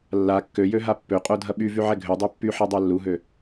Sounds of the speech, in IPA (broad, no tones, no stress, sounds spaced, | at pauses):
lː a kː ø j ø ɦ a pː ø qʼ o dʱ ɐ ɓ y v y ʕ ɛ ɡʱ ø dˤ ø pː y ħ a dˤ a lː u ɦ ø